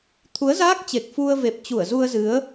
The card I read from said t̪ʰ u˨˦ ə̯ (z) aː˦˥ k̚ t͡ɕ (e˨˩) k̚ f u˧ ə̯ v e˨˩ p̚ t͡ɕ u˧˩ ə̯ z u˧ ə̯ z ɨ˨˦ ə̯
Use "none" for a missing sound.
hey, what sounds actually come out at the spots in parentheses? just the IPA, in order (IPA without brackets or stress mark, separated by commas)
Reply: z, e˨˩